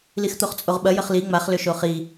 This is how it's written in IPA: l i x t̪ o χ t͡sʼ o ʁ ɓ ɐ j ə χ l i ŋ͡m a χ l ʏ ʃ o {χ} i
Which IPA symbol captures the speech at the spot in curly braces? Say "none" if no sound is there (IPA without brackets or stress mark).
χ